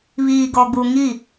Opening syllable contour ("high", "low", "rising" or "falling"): low